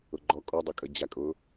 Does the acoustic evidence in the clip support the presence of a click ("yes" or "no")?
yes